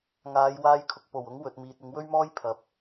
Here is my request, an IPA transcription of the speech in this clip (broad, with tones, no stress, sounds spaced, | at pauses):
ŋ aː˨˧ j w aː˧ j kʰ ʊ˨ k̚ p o˨˩ w ʊ˨˥ ŋ w ɵ˨ t̚ m iː˨ t̚ ɪ˨˧ ŋ w ɵ˥ ɥ m ɔː˥ j pʰ ɐ˨˥ p̚